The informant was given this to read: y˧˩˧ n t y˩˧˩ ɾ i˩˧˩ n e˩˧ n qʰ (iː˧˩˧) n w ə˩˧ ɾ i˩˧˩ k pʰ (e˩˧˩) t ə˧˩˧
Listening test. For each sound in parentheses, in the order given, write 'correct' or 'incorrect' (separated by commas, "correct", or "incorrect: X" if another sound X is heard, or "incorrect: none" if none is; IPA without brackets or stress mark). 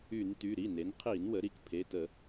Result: correct, correct